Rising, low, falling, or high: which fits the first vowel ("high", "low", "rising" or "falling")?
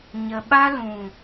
low